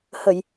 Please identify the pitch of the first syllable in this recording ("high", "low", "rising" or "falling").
low